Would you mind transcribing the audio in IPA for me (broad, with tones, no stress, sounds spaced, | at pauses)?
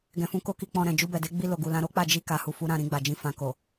ɡ ɛ̃˨ f ũ˨˦ k o˧ k i˧ k͡p ɔ̃˧ ɾ ɛ̃˨ d͡ʒ u˧ b ɛ˨ d e˨˦ ɡ͡b i˧ l o˨ ɡ u˨ l ã˨˦ ɾ o˦ k͡p a˦˨ d͡ʒ i˧ k a˨ h u˨ f u˨˦ ɾ ã˦˨ ɾ ĩ˧ ɡ͡b a˨ d͡ʒ ĩ˨˦ f ã˧ k o˨